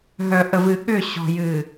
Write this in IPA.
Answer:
ɦ œ˨ ʔ ə˨ v ɨ˨ ɠ ʏ˦˨ ɕ ɔ̤˨ j ɨ˨

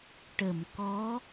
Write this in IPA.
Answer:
ʈ ə˨˩˨ m k ɔ˧˥

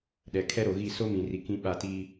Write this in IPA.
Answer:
ɗ ɛ˨ kʰ ɛ˦ ɾ o˨ ɣ i˦˨ s o˦ m ĩ˨ r i˨ k ĩ˨ ɓ a˨ t i˦

